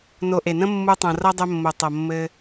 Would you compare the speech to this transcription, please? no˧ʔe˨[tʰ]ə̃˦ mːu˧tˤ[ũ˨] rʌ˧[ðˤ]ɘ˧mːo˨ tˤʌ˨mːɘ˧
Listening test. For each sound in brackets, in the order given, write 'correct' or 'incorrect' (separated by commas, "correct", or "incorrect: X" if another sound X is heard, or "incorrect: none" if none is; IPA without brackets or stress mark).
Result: incorrect: n, incorrect: õ˨, incorrect: dˤ